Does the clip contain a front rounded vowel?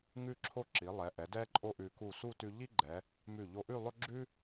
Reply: no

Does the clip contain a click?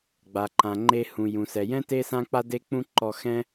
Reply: yes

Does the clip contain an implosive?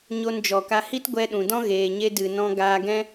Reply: yes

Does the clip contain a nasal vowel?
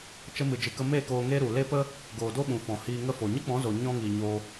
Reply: yes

